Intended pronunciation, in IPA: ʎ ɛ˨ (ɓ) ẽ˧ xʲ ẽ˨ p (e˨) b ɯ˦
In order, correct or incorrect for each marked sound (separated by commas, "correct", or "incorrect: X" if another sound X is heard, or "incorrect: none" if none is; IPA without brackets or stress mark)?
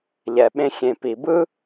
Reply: correct, incorrect: i˨